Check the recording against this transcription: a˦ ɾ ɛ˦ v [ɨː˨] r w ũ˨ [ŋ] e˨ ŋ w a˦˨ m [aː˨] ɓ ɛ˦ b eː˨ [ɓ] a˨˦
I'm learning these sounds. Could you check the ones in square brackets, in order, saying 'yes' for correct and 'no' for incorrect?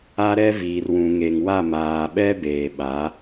no, yes, yes, yes

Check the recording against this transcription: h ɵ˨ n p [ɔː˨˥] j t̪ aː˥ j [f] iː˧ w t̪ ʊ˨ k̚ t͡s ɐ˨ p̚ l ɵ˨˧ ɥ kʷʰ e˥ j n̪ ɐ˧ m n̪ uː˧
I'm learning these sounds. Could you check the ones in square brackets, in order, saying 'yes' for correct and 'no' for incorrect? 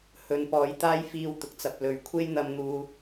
yes, yes

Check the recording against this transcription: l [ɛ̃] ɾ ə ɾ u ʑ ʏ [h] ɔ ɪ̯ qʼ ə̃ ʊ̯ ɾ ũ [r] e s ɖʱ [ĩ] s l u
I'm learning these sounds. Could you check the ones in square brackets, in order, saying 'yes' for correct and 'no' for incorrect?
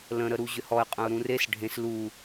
no, yes, yes, no

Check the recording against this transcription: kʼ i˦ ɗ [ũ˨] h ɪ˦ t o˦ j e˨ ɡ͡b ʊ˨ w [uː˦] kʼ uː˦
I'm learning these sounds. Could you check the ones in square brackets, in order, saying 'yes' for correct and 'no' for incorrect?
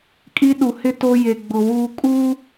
no, no

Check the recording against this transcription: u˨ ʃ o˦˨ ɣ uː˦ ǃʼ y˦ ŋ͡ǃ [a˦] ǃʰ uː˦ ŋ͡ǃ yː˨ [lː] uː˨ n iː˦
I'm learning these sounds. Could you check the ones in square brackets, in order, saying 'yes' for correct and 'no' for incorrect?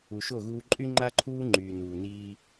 yes, no

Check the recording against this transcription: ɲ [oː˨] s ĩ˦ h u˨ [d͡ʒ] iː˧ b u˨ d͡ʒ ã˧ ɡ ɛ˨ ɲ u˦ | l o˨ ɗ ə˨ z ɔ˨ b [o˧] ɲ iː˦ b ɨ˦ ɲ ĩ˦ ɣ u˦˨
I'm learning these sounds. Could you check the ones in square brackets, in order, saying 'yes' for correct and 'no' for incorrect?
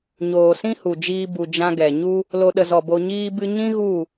yes, yes, yes

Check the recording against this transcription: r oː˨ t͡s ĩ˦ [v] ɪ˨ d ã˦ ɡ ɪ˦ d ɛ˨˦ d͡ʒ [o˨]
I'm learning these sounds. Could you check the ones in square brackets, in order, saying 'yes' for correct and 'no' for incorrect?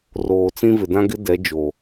yes, yes

